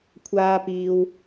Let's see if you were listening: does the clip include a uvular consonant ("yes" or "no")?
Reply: no